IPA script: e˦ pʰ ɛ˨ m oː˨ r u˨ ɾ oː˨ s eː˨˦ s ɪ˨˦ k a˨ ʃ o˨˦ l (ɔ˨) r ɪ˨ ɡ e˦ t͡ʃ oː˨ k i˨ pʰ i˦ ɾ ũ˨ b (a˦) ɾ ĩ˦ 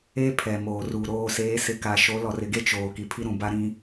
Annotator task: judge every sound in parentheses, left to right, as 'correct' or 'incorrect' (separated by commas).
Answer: correct, correct